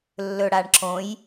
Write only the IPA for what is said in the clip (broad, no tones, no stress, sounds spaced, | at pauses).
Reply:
lː ɵ ɽ a ɳ ǁ õ j